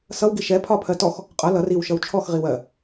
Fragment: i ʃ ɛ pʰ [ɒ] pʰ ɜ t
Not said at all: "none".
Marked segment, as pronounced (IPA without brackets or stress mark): ɒ